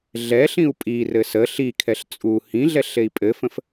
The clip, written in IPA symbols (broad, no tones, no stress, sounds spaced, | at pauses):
ɮ ɛ ɬ ĩ u̯ pʼ i r ɘ s ə ɬ i kʰ ɛ ɬ t͡sʼ u h ĩ ɮ ɛ ɬ e i̯ pʼ ɘ f ə̃ f